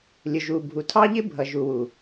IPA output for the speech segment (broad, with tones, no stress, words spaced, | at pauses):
lʲʊ˨ʒu˨bʱu˨ tʰɑ˦ʎɪ˦bʱʌ˨ ʒu˨wu˨